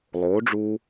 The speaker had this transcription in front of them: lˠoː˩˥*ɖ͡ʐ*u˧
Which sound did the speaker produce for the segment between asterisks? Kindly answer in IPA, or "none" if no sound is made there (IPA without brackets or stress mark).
ɖ͡ʐ